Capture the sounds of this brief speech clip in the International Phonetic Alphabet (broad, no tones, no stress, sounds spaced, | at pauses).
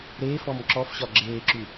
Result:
ɾ eː f ɔ m ǁ ɔ f ɕ ɒ ɡ͡ǁ eː ǁ y